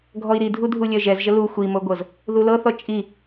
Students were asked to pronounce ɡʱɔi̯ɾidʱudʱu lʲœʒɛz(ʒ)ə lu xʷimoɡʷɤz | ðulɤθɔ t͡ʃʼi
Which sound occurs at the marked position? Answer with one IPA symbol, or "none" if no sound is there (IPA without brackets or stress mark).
ʒ